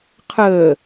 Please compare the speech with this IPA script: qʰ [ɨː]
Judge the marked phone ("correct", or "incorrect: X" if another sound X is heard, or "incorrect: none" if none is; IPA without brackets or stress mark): incorrect: əː